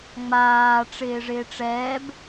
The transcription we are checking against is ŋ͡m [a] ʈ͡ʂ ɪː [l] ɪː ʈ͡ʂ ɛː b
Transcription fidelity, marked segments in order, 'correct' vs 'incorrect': incorrect, incorrect

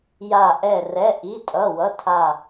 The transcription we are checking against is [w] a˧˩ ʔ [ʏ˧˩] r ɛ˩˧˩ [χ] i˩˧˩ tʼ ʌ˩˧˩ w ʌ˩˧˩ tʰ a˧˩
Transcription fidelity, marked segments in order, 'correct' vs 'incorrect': incorrect, incorrect, incorrect

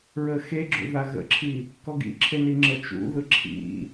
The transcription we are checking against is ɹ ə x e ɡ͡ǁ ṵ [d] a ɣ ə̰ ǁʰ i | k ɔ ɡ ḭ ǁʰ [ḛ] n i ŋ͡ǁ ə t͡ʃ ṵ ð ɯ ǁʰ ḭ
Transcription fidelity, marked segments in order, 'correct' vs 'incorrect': incorrect, incorrect

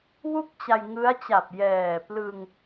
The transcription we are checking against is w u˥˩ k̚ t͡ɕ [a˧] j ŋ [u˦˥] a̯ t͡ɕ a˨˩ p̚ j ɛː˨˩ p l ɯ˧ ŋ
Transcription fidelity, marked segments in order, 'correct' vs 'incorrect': correct, incorrect

